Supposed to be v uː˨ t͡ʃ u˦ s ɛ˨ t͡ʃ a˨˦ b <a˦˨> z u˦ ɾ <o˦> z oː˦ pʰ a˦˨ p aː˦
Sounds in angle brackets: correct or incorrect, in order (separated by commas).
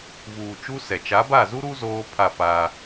correct, incorrect